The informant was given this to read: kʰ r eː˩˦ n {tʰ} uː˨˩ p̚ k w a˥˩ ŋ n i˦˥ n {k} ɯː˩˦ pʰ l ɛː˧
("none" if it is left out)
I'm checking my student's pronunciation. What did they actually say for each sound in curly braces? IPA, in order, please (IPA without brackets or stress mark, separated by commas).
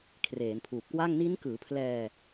pʰ, k